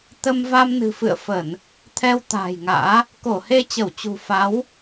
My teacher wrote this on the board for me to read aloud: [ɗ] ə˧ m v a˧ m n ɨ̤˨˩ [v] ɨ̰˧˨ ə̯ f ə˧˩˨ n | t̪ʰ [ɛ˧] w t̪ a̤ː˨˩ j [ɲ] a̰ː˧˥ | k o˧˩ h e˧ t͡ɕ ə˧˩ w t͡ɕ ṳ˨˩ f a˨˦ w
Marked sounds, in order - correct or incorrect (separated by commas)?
incorrect, incorrect, correct, incorrect